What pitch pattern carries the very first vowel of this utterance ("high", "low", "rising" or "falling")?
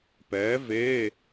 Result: rising